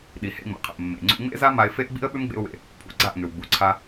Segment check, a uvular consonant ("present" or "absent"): present